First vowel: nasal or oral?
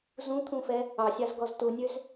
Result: nasal